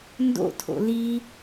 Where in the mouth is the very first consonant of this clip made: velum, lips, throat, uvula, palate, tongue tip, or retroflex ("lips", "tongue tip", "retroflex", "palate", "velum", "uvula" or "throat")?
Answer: tongue tip